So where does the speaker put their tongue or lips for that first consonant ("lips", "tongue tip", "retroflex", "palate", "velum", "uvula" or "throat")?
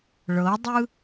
retroflex